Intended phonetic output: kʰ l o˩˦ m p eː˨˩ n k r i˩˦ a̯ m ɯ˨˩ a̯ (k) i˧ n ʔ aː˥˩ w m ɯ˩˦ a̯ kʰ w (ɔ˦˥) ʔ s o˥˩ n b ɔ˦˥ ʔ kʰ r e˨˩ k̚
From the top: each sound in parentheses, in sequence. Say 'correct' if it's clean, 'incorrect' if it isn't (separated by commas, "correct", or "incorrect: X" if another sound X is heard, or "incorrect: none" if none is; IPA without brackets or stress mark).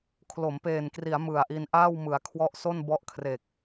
incorrect: ʔ, correct